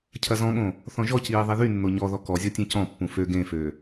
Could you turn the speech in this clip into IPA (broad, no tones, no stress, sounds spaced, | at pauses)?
cʰ ɐ z ɔ̃ ɠ õ | θ ɔ̃ ʒ ɔ c iː ðˤ i ð y nː o ɲ ɔ ð ɔ k ɔ zʲ ɔ tʲ ẽ c ɔ̃ pː ũ f ø ɡ ẽ f ø